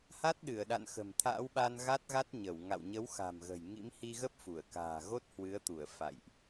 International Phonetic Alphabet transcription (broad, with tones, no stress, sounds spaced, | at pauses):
h a˦˥ t̚ ɗ ɨ˧˩ ə̯ ɗ a̰˧˨ n x ə̤˨˩ m t̪ʰ a̰ː˧˥ w ɓ a˧ n ɣ a˦˥ t̚ ɣ a˦˥ t̚ ɲ ə˧˩ w ŋ a̰˧˨ w ɲ ə˨˦ w x a̤˨˩ m ɣ ə̤˨˩ j ŋ ḭ˧˥ m h i˧ ɣ ə˦˥ p̚ f u˧˩ ə̯ k a̤ː˨˩ ɣ o˦˥ t̚ h w ɨ˨˦ ə̯ t̪ u˧˩ ə̯ f a̰˧˨ j ʔ